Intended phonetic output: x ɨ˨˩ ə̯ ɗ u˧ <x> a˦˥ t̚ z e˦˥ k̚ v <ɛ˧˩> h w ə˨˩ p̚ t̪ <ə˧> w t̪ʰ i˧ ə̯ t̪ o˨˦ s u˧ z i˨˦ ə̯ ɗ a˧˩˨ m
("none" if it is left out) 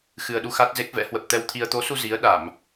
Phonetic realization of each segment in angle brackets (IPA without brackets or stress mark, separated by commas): x, ɛ̰˧˥, ɛ˧